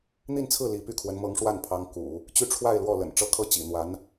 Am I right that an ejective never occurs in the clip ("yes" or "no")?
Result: yes